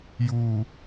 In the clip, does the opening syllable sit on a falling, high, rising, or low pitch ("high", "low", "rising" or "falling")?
low